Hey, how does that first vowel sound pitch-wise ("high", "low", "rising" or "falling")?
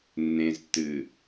low